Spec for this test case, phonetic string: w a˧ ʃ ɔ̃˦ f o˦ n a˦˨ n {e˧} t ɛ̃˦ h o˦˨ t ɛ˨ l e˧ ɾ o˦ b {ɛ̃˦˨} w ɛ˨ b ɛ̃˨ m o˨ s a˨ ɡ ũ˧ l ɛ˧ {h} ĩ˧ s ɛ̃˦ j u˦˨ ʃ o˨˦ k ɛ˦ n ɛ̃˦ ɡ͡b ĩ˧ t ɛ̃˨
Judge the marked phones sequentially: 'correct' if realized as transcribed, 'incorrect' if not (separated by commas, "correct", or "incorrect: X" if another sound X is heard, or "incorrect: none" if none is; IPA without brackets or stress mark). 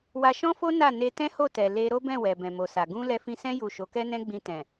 correct, correct, incorrect: f